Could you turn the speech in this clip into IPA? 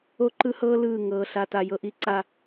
o˦ǃɯ˦hɤː˦ lɯː˦˨ŋɤː˨ɬa˨ ta˨jɤ˨ ʔi˨ǀa˨

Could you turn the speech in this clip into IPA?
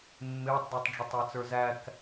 mːɪːtˤdɛtˤɖ͡ʐʌtˤ æt͡sə˞zæk

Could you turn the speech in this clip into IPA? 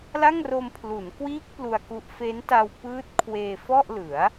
la˥˩ŋro˧m pʰlu˩˦nkwiː˦˥k̚ plu˧a̯ku˦˥ʔ fe˦˥nta˧wpɯː˦˥t̚ kʰweː˧fɔ˥˩ʔlɯ˩˦a̯

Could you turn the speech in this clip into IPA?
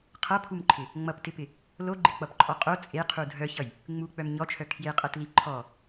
qʰʌpʰumǃʰɪ | ŋ͡mʌptɪpɪ | loɡ͡ǃɪk͡pʌpǃʼɔ qʼo t͡sʼeqʰu dʱœçʌj | ŋ͡muk͡pœm ɲɔt͡ʃʰœ kʰjeqʼɤtli ǃʰɔ

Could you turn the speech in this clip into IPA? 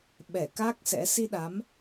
ɓɛ˧˩ka˦˥k̚ sɛ̰˧˥ si˧ɗa˨˦m

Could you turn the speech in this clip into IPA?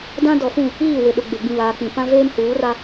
dã˦dɔ˨fũ˦˨ | iː˦˨wɪ˨ɗʊ˨ ɡ͡be˨ɡ͡bĩ˨βaː˨k͡pĩ˨ pã˦veː˦mhuː˨˦ ra˦

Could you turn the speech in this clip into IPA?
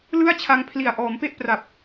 lɯ˥˩a̯t͡ɕʰa˧ŋpʰli˨˩a̯ ʔɔː˩˦mpe˥˩ʔpra˨˩p̚

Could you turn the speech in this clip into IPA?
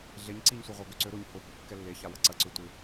ɮeɲǀiɲsʷeʁʷa ɡøǀø ɾʊɲ hʊhʊ kːɛlːeça wɐǀɐǀø tʷɪ

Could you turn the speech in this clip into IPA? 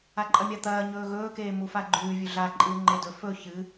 aǃʼɐmʲat̪ɐː ɲɵːɣɵː keːmufaɡ͡ǃʉː vʲʉɮa ǃʼɨːŋ͡ǃedɵ fɵ çɨ

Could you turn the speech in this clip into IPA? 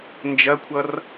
nd͡ʒɐkʷʰʌr

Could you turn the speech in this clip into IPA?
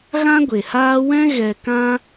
ɣã˦ɡʷe˨haː˦ wɛ̃˦ ɣɛ˧kã˦

